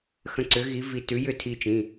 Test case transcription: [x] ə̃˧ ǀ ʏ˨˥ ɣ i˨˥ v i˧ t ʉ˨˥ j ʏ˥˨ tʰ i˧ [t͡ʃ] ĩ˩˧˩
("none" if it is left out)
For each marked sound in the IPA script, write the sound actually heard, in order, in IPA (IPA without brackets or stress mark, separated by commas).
x, t͡ʃ